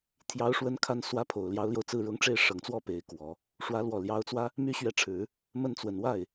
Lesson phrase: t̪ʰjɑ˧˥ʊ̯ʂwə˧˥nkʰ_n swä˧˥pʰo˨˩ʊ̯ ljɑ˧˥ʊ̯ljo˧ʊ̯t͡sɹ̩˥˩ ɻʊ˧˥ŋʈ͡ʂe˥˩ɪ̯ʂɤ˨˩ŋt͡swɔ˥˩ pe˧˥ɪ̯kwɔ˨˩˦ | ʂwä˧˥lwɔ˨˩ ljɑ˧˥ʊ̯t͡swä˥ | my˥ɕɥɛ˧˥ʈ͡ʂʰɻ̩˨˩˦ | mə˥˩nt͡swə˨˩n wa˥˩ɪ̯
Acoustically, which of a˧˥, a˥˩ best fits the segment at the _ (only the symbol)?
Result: a˧˥